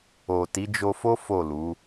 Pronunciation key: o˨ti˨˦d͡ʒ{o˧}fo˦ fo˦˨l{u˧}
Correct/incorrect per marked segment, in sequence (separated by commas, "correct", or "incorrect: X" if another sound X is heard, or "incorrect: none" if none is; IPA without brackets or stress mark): correct, incorrect: u˨˦